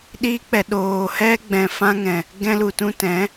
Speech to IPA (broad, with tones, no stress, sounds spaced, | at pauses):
ɗ iː˧ k͡p ɛ˨ ɗ oː˨ h ɛ˦ ɡ͡b ɛ̃˨ f ã˦ ŋ ɛ̃˨ | ɡ ɛ̃˧ l u˨ t ũ˧ t ɛ̃˨˦